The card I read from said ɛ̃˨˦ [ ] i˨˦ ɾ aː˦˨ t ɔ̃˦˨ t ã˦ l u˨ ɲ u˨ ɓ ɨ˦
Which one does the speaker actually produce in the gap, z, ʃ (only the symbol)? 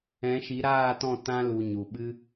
ʃ